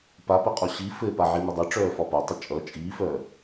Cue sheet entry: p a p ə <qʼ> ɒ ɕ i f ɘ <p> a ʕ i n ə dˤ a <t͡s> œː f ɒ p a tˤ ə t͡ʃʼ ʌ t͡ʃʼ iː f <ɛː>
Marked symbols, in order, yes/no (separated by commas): yes, yes, no, no